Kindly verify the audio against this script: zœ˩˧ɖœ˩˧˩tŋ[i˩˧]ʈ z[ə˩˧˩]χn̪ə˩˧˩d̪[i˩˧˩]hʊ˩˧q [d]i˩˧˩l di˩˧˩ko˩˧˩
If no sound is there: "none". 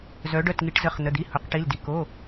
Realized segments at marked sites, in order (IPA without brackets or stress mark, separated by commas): i˩˧, ə˩˧˩, i˩˧˩, ʈ